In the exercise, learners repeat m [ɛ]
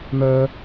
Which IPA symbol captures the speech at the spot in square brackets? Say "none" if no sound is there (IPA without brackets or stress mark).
œ